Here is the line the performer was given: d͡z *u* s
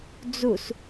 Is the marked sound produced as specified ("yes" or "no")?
yes